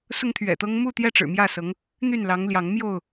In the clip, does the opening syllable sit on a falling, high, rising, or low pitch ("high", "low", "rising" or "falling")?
high